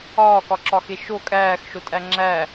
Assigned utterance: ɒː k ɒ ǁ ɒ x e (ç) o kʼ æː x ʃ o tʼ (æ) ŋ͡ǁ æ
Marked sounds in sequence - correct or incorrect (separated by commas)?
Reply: incorrect, correct